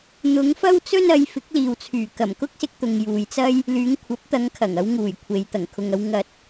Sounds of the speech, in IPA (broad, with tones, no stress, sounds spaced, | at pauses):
n̪ ʊ˨˧ ŋ f ɐ˥ w t͡s ɵ˥ n ɐ˨˧ j f ɪ˨˥ k̚ l iː˨ w t͡sʰ yː˨˩ k ɐ˨˩ m k ʊ˥ k̚ s ɪ˧ k̚ t̪ ʊ˨ ŋ j uː˨ j t͡s ɐ˥ j | l yː˨˧ ŋ kʷʰ ɐ˨˥ p̚ t̪ ɐ˨˧ ŋ kʰ ɐ˨˩ ŋ ɐ˨˧ w ŋ uː˨˩ j kʷʰ e˨ j t̪ ɐ˨˩ ŋ kʰ ʊ˨ ŋ ɐ˨˧ w ŋ ɐ˧ t̚